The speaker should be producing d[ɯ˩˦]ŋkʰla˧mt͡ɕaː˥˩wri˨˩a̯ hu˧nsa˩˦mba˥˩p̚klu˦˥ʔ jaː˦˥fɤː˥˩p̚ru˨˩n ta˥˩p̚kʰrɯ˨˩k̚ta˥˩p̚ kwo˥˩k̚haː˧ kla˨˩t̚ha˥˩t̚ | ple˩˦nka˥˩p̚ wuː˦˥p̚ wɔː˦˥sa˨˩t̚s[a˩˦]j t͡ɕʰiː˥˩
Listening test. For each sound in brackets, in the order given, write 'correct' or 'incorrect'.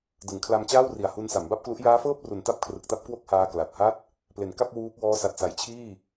correct, correct

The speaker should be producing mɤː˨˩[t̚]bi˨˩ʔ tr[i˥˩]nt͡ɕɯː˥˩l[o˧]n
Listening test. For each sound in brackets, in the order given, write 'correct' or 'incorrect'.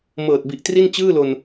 correct, correct, correct

